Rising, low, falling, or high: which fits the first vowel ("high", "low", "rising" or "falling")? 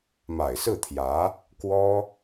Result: low